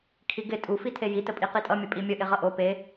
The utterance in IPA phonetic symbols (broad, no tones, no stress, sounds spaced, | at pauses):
kʰ i ɡ ɪ tʼ u f i tʰ e j i t ə pʼ i q i tʼ ʌ mʲ ə pʼ i mʲ ə ʔ ɪ ʁ ʌ ʔ o p e